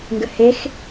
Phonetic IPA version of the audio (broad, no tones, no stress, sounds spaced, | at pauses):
ŋ ɡ ə h e x